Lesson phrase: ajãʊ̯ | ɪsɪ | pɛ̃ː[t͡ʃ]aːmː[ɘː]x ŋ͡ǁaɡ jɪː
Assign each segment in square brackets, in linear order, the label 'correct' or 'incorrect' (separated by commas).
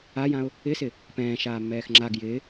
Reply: incorrect, incorrect